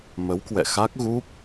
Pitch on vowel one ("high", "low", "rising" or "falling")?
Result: rising